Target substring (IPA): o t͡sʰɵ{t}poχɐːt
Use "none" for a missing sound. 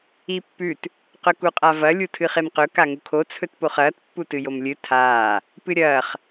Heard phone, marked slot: t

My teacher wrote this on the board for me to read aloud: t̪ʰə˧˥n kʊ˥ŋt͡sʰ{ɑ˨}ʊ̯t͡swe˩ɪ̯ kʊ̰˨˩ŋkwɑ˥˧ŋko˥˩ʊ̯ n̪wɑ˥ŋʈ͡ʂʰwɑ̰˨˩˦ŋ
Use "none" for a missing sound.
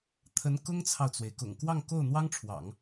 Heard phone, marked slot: ɑ˨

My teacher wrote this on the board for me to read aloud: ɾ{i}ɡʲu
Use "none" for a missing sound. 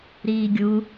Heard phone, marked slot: iː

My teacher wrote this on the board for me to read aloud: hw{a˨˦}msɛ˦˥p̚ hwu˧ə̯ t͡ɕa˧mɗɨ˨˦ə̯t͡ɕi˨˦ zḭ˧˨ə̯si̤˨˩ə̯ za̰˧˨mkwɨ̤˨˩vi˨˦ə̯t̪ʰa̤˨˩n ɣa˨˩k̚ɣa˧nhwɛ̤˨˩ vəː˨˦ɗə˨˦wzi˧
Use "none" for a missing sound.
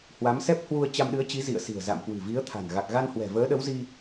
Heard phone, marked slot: a˨˦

